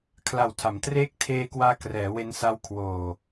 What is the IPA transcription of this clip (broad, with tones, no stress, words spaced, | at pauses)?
kʰla˨˩wtʰa˩˦m treː˦˥k̚tʰeː˧kwaː˧ krɛː˩˦we˧nsa˧w kʰwoː˨˩